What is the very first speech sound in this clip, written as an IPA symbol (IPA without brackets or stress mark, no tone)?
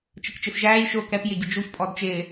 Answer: t͡ʃ